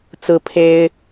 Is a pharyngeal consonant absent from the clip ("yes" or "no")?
yes